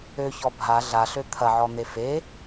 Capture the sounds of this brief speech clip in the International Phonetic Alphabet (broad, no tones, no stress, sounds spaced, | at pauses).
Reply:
ø ç ɔ bʱ a ɮ a ɬ ø t̪ʰ ɐ ʕ ɔ n̪ e f e